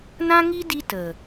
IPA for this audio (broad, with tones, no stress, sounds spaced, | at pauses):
n ã˦ ŋ i˦ d i˦ t ə˨